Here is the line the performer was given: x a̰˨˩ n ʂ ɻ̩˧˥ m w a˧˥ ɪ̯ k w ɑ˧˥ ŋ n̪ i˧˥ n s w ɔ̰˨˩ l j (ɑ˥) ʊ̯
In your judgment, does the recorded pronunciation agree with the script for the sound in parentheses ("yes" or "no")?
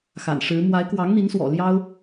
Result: yes